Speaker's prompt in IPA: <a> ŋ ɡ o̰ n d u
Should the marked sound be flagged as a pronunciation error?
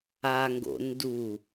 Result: no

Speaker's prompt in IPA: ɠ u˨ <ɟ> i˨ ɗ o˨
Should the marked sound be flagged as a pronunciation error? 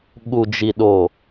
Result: yes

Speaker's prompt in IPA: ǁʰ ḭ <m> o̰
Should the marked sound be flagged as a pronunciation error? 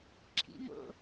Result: no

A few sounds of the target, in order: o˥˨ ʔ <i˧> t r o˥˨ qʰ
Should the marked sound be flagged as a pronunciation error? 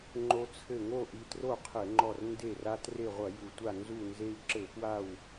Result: no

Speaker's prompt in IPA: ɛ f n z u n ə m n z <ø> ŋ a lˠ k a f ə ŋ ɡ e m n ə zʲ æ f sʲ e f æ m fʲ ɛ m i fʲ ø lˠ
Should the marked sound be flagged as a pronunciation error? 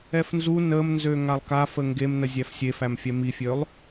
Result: no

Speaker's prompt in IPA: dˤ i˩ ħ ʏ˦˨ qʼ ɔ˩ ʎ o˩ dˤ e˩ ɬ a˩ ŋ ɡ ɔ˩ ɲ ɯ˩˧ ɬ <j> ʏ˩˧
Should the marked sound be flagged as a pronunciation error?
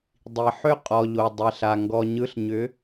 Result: yes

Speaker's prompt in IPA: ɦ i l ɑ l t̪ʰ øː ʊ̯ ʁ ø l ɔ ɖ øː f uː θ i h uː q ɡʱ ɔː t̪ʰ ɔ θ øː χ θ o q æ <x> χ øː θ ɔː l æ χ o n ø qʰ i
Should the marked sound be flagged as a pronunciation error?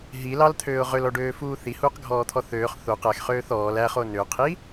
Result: no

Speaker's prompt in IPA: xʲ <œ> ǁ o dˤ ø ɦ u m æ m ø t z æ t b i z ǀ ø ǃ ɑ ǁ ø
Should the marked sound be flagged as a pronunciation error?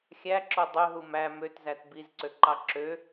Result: yes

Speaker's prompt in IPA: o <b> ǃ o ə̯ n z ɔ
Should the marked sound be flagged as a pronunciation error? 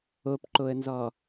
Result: yes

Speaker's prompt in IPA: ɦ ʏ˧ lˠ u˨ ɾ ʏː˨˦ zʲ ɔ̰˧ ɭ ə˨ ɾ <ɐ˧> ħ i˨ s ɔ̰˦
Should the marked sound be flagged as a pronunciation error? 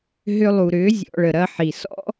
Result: no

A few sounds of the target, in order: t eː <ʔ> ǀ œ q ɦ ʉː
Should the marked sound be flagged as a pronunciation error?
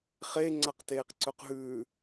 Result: yes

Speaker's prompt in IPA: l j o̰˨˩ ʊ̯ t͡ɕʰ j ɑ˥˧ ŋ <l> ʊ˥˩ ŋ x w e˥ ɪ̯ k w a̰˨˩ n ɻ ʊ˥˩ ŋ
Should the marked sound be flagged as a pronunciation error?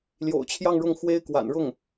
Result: yes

